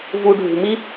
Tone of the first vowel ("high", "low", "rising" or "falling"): low